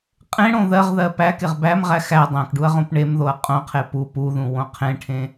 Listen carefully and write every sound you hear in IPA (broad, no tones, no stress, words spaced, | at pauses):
qʼẽɽõ ðɜʁðɜ pækeʁ bæmʁæ xæ dˤæ̃kɖuɐ̯ ʁõpɳemðoɐ̯ qʼõqʰe pu puðũ wõqʰẽʈʰẽ